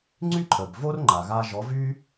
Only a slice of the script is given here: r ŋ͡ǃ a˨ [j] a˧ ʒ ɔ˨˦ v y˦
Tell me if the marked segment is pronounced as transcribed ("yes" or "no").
no